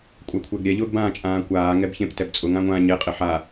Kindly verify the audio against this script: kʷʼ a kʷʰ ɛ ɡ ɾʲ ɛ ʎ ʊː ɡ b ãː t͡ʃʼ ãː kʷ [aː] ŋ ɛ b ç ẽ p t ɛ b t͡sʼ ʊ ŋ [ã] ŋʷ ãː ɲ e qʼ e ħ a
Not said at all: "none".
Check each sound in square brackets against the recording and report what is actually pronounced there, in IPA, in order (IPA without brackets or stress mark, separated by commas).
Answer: aː, ã